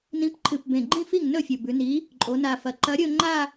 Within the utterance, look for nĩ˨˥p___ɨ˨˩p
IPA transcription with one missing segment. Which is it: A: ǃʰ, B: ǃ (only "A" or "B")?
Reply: A